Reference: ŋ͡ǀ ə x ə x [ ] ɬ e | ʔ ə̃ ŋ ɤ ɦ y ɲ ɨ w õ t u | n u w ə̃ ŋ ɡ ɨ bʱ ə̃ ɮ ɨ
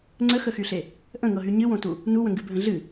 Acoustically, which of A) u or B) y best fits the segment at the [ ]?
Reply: B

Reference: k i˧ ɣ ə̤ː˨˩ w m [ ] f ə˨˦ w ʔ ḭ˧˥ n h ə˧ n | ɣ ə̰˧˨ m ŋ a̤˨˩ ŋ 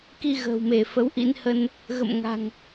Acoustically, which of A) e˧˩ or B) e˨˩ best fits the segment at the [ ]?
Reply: A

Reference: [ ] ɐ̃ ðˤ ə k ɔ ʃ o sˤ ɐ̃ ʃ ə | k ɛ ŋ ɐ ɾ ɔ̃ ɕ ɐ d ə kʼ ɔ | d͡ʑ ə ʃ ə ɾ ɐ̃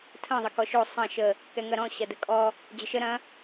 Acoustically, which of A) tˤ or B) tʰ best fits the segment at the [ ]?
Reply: B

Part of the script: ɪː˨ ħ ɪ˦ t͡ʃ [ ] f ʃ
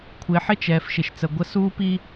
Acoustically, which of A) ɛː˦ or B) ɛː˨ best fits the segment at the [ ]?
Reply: B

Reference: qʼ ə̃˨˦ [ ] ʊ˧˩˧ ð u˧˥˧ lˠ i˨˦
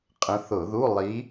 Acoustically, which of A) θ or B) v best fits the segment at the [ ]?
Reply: A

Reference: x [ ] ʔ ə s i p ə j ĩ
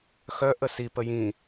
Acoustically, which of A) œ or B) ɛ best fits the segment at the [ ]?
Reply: A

